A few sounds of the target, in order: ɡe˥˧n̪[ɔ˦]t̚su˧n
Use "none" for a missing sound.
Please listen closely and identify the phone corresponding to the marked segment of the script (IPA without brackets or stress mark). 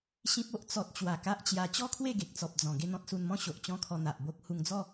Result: ɔ̃˦